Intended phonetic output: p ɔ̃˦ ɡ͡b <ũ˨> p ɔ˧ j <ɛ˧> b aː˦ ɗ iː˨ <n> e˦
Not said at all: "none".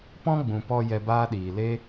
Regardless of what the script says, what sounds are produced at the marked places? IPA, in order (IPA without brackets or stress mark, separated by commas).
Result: ũ˨, ɛ˧, l